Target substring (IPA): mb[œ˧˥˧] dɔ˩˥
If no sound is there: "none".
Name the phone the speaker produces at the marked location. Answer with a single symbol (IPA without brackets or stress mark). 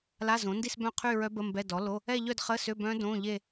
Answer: ɛ˧˥˧